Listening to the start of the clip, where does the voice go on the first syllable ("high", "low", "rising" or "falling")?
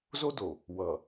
high